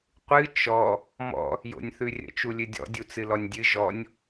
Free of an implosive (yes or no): yes